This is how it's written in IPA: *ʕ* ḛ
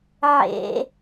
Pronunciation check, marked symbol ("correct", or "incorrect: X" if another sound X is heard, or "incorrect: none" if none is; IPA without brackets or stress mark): correct